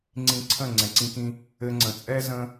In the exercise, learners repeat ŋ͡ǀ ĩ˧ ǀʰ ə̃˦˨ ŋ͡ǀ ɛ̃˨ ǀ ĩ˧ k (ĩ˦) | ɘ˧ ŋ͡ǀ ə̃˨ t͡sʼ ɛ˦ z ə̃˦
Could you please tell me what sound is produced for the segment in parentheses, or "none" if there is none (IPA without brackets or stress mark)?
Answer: ĩ˧